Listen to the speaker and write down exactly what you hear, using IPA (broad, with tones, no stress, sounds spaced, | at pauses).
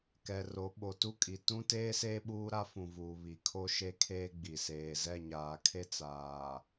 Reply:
k ɛ˨ r o˨˦ ɓ o˨ t u˦ kʼ i˨ t ũ˦ t eː˦ s eː˦ ɓ uː˦ ɾ a˦ f ũ˨ v uː˨ β i˨ kʰ o˦ ʃ e˦ kʰ eː˦ ɡ͡b i˨ s eː˨ z ɛ˦˨ ɲ aː˨ kʰ e˦ t͡s aː˨